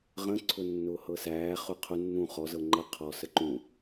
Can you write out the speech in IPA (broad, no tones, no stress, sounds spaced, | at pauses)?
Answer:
ʁ ə̃ ǀʰ ʊ nː ʊː h ɤ s æː χ ʊ qʰ ʊ nː ũ χ ɔ z ɤ ŋ͡ǃ ɤ qʰ ɔ s ə ǃ ũ